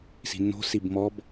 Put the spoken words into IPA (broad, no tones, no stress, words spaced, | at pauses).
si̤nːo̤sib mɔb